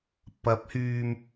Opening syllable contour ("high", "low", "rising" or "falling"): rising